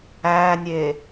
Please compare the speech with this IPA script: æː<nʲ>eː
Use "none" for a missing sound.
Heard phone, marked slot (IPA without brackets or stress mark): nʲ